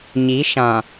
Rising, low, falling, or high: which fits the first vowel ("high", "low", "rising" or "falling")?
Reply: rising